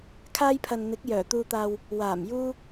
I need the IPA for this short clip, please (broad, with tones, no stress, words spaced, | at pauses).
kʰaː˧jpʰɐ˨n n̪ɪ˨˥k̚ jœː˨˩ t̪uː˨t̪aː˨w | waː˨˩mjuː˧